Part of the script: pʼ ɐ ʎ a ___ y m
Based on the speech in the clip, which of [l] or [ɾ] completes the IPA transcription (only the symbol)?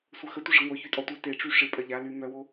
l